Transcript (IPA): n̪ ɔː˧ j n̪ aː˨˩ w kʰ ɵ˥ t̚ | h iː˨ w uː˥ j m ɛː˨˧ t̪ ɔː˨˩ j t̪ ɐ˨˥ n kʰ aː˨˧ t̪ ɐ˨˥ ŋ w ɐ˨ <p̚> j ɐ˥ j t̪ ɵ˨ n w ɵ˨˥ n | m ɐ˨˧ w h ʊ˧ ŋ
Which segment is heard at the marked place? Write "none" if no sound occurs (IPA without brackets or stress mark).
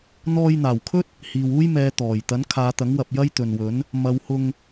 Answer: p̚